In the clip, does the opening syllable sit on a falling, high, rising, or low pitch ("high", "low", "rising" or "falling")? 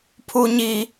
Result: high